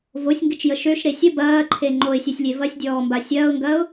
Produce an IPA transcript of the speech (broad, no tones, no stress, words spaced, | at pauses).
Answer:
vosʲŋɡɪt͡ʃjə ʃøʃɾe sʲə bɐːǃʰe ŋ͡ǃoɪ̯sʲœsʲlʲe vɐsʲdʲɔːmba sʲɐːʊ̯ŋɡɐːʊ̯